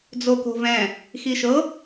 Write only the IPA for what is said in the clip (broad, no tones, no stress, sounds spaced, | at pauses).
d͡z o k o̤ v ɛ̃ | x i ʃ ɤ